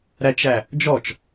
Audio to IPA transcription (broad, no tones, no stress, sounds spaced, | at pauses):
ɾ æ t͡ʃ æ | d͡ʒ ɔ t͡ʃ